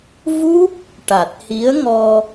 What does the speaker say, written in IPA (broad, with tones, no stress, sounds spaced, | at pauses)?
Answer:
v u˦˥ p̚ | ʈ a˨˩ t̚ h i˧˥ ə̯ ŋ ɔ˧